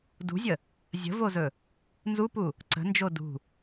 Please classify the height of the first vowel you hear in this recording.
high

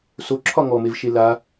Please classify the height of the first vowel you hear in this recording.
mid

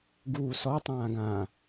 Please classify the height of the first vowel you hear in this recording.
high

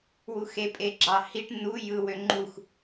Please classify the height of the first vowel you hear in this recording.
high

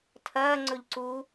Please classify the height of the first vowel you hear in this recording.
low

